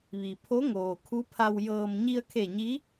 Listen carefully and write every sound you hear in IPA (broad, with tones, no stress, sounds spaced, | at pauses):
ʋ i˩ pʰ o˧˥ ŋ oː˩ kʰ u˧˥ pʰ a˧ w j ɤː˧ m ɲ i˧ ə̯ kʰ e˧˩ ɲ i˧˥